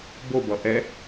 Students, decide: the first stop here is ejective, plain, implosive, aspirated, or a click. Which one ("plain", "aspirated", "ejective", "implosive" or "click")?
plain